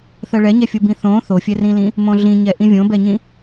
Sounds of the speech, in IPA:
θ ɜ ɭ ɛ ɲ ɛ fʲ o b ĩ θ õ θ o fʲ ɛ r ĩ l ĩ | m õ ɮ ĩ ɲ ɛ ʔ ĩ vʲ õ b ɛ ɲ ĩ

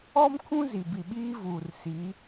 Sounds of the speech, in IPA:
ɔ˦ m kʰ ũ˦ z i˨ b i˨ ɓ iː˦ v uː˨ r s i˨˦

